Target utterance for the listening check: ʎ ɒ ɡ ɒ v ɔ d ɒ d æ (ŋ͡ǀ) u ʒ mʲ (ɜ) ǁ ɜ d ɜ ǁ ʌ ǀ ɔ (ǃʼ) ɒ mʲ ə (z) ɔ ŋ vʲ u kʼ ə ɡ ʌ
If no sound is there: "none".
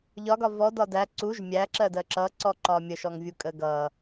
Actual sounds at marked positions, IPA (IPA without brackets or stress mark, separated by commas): ǀ, æ, ǃ, ʃ